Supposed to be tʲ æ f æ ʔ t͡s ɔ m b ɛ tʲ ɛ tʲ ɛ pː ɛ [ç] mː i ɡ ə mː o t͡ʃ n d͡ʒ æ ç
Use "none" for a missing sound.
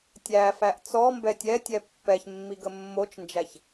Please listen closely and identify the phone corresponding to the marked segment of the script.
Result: ç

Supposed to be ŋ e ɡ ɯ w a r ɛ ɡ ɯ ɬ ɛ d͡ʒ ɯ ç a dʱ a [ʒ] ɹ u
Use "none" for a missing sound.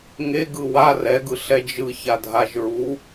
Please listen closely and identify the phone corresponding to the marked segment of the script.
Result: ʒ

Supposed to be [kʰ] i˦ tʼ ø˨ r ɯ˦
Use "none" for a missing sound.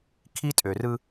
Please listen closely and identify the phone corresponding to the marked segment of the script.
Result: kʰ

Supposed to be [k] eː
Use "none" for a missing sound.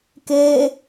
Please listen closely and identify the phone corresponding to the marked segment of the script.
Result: k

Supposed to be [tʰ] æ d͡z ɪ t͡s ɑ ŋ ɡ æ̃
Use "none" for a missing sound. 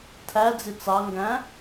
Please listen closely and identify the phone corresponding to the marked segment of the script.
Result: tʰ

